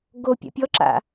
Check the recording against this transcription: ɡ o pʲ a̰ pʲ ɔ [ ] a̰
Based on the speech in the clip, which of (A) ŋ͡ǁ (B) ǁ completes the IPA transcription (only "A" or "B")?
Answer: B